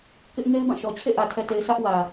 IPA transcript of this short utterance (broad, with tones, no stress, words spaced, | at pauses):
kɪ˦ʔ ŋe˦ɪ̯bã˦˨ʃɔ˨ t͡ɕʰḛ˦˨ʔä˨tʰɛ˨te˨ɪ̯ sä˦ʔ wä˨